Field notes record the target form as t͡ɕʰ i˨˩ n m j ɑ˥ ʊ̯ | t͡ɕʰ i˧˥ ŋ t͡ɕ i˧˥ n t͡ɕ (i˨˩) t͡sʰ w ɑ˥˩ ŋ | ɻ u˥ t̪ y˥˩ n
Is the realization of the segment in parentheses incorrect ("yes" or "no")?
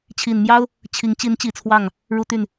no